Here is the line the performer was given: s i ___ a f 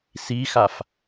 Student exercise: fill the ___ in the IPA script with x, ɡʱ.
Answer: x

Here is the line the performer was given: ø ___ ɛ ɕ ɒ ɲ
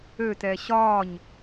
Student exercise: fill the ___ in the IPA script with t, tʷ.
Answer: t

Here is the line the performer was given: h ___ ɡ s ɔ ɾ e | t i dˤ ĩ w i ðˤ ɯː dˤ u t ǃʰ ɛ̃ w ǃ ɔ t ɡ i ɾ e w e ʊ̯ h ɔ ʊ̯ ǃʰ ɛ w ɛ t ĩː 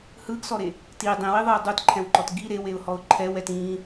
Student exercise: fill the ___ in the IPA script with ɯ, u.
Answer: ɯ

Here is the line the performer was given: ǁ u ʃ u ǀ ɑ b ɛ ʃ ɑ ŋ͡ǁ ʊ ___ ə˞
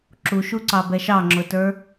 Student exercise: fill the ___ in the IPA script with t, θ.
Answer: t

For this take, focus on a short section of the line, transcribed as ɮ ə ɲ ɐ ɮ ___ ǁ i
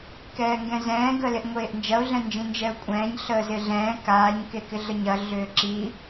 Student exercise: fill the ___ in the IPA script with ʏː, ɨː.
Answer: ʏː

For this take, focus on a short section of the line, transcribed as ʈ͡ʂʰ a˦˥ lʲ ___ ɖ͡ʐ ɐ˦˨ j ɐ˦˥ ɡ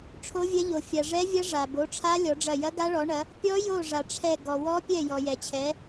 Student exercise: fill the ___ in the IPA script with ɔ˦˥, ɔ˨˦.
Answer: ɔ˨˦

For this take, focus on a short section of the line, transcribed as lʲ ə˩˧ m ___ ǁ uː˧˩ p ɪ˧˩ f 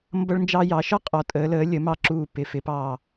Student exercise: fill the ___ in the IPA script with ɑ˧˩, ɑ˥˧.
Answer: ɑ˧˩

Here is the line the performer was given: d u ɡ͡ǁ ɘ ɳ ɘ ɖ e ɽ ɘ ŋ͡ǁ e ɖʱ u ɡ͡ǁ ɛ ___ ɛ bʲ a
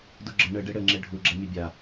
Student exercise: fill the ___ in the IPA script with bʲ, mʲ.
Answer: mʲ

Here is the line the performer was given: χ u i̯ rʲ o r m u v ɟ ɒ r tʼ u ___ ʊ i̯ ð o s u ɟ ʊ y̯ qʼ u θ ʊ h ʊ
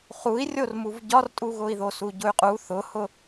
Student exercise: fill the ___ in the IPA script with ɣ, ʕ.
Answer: ɣ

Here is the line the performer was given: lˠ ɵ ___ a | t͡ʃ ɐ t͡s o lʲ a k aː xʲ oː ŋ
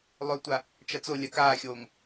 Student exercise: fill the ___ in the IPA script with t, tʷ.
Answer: tʷ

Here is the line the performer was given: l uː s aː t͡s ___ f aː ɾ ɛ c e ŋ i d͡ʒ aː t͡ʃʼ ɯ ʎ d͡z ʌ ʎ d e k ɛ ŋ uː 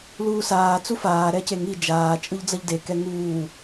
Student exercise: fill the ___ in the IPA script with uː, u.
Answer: u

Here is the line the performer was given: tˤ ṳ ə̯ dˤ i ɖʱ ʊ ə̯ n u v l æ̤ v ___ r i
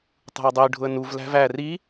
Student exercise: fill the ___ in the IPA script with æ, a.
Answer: æ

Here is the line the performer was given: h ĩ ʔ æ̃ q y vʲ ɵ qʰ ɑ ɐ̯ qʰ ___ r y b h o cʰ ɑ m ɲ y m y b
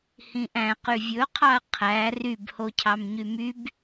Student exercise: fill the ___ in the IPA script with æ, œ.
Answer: æ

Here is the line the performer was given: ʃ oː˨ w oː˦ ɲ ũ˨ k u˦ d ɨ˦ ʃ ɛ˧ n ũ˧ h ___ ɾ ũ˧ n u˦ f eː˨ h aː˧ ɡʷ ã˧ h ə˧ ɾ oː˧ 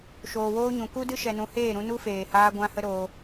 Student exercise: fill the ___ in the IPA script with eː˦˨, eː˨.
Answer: eː˦˨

